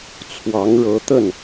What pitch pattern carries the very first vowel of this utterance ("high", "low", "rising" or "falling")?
rising